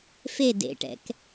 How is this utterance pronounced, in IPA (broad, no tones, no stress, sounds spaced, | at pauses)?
f e d ḛ ʈ ɛ̰ k